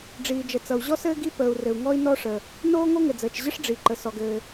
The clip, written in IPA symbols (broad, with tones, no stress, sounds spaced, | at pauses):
ɖ͡ʐ iː˩ d͡ʒ ə˩ t͡s ʌ˩ u̯ ʑ ɔ˥ s ɘː˥ ɡ i˥ p əː˩ u̯ r ɘ˩ u̯ ŋ ɔ˥ i̯ n ɔ˥ ʂ ə˩ | n oː˥ ŋ o˥ ŋ ɘ˩ d͡z əː˩ t͡ʃ ʑ ə˥ ʂ ɖ͡ʐ i˩ ǃ ə˩ s ɔ˩ ɡ ɘː˩